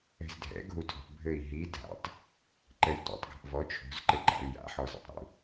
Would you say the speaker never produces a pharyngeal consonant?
no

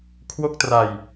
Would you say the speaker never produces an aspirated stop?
no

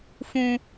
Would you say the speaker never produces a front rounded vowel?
yes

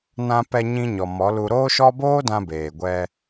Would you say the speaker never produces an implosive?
yes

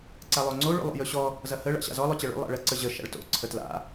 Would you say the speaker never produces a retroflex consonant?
no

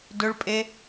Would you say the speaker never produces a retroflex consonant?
no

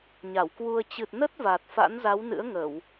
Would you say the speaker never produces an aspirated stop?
yes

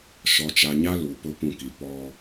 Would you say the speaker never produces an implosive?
yes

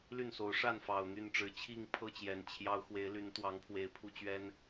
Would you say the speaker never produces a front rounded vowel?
no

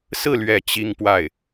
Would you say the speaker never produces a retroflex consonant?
yes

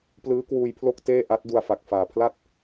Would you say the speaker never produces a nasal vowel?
yes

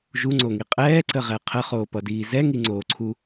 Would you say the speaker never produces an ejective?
no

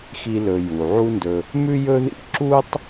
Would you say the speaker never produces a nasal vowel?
yes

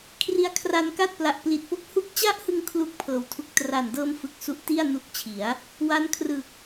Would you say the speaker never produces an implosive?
yes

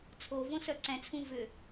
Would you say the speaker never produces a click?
no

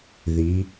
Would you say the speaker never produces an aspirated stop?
yes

